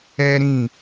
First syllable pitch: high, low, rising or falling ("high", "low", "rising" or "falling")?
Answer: high